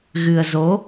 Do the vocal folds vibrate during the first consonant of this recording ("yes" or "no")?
yes